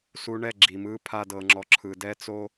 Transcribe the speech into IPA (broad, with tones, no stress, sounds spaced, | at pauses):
s u˧ ɳ ɛ˦˨ ɡ͡ǁ i˨ m ɯ˧ pʰ a˦ d ɤ˧ ŋ͡ǁ ɔ˧ ǁʰ ɯ˨ d ɛ˦ t͡s o˦